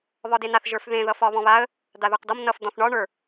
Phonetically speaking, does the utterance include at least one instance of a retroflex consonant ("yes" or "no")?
yes